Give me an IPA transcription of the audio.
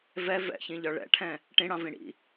v ɛ v ɛ̰ ç ĩ ʎ ɒ ɭ ɛ̰ ʈʰ ɛ̃ | ʈ ĩ ɽ ɑ̃ v ĩ ɽ ḭ

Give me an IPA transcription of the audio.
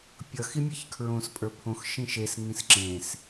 pʲ ʌ x i mʲ e ç kʰ ɹ õ s pʼ ə˞ pʰ õ x ʃ ĩ ʃ e s ŋ ĩ s ǁ ẽ s

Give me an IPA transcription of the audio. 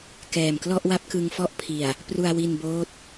k ɛː˨˩ m k l ɔ˥˩ ʔ w a˦˥ p̚ k ɯ˧ ŋ f ɔ˥˩ ʔ pʰ i˨˩ a̯ | p r u˧ a̯ w i˧ n b oː˦˥ t̚

